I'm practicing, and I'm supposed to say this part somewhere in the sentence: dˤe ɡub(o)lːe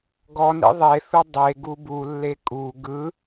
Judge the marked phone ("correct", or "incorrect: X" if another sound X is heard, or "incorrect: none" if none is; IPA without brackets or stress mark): incorrect: u